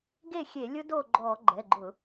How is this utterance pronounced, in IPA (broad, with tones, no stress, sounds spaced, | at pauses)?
ɡ e˥˨ xʲ e˧˩˧ lʲ ʊ˦˥ d o˥˨ ɡ͡ǃ ɔ˧˩˧ ɡ͡ǃ ɛ˩˧˩ ɡ͡ǃ ʊ˧˩˧